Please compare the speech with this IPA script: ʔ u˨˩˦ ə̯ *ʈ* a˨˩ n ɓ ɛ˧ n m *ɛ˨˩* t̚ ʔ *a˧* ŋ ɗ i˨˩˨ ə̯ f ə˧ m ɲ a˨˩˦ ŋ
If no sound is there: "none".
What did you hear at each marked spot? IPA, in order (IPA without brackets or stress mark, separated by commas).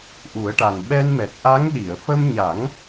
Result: ʈ, ɛ˨˩, a˧˥